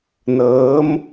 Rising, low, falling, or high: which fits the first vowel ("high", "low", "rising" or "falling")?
rising